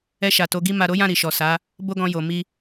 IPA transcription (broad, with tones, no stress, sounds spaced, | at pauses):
ɛ˧ ʃ a˨ t o˨˦ ɡ i˦ m a˧ ɾ o˦ j ã˦˨ ɾ i˨ ʃ ɔ˨ s a˨˦ | b o˦ ɡ ɔ̃˧ j o˨ m i˧